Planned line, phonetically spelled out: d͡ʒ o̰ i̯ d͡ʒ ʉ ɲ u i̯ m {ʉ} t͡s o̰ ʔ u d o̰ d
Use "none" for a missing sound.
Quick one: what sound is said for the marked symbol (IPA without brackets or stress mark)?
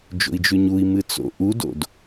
ɨ